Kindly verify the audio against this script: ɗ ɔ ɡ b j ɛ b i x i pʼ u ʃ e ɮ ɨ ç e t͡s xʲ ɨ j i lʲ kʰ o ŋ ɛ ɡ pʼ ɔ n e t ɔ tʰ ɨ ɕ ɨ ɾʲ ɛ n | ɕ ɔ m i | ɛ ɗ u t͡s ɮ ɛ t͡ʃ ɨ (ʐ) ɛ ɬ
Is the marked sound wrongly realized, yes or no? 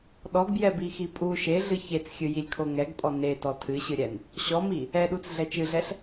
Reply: yes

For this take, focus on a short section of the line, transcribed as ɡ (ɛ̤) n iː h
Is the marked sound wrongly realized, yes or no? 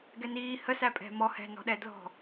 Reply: yes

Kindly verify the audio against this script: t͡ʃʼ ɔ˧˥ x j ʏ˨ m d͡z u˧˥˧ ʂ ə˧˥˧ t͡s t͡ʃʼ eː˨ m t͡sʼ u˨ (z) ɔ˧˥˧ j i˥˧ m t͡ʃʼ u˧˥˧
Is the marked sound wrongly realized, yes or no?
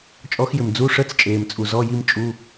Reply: no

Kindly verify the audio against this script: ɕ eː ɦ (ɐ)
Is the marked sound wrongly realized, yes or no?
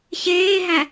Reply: yes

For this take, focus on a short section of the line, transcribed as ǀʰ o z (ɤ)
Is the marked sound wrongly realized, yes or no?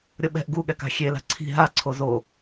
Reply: yes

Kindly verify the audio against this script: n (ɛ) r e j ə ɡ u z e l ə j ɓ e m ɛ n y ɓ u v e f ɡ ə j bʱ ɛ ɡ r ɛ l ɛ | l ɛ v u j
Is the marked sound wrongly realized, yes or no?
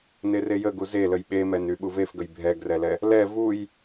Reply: yes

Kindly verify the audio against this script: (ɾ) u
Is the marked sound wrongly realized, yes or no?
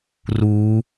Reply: yes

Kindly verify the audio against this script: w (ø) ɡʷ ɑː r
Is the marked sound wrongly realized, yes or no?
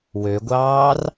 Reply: no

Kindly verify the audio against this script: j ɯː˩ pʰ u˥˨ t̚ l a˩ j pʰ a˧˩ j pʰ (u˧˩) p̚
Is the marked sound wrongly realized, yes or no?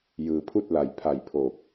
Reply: yes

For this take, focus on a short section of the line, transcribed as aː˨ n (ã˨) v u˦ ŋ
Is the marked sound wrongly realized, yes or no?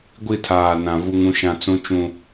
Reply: no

